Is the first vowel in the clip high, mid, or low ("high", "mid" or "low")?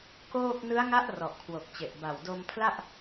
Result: mid